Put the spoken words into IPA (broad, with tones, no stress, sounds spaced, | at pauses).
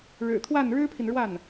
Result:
ɻ ɻ̩˨˩ t̪ʰ w a˥˩ n ɻ ɻ̩˥ pʰ i˨ n ɻ w a˥˩ n